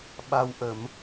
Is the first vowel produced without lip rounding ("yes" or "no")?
yes